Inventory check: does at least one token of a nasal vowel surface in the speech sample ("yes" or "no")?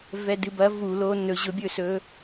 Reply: no